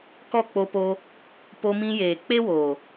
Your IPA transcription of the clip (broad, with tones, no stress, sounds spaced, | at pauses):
k ɔ˦˨ k͡p o˧ p o˧ | p o˧ m ĩ˧ j eː˨ k͡p e˦ w oː˨